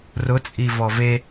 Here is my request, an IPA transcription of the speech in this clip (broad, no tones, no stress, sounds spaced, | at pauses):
r ʊ t͡sʼ i v ɔ v e